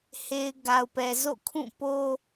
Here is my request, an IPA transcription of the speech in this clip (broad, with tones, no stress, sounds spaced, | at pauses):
h e˨ ɪ̯ ɡ a˨ ʊ̯ p ɛ˨ z o̰˦˨ kʰ ũ˦˨ p o˦